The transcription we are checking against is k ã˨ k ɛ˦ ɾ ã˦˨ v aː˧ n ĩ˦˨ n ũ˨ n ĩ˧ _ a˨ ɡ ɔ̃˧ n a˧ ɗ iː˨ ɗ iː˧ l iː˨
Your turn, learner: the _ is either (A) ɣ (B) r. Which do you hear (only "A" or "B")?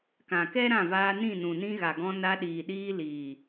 A